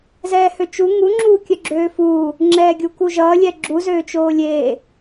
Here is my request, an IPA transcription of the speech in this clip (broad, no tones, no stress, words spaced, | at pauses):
zɛːhøt͡ʃu ŋu ŋ͡ǁuːkʲœɡ͡ǁøːfuː | ŋ͡ǁɛːɡʲukuʒʌː lʲɛɡ͡ǁu zøːt͡ʃoːlʲeː